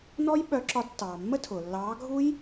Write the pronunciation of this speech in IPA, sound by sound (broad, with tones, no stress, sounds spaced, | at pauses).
n ɔ˦˥ j ɓ œ˨˦ ǁ ɒ˨˦ d tː ɑː˩ mː ə˦˥ tʰ ʊ˩ lː ɑː˨˦ ɡʱ u˦˥ j